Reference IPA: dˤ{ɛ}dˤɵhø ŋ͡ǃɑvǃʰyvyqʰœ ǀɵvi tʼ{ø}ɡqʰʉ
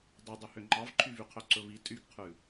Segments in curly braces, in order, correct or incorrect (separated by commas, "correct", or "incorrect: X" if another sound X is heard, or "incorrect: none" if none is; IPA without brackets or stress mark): correct, incorrect: y